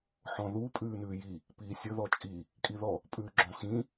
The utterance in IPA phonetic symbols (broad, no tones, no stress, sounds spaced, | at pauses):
ħ ɔ̃ ð u pʼ ʉː n ʉː j i | p iː sʲ ɵ ð ɔ t͡ʃʼ i | kʼ i ð ɔ | pʼ ʉː ɡ͡ǁ ɔ̃ x ĩ